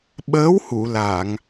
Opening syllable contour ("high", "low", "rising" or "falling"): rising